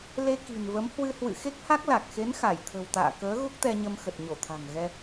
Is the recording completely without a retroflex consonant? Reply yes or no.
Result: yes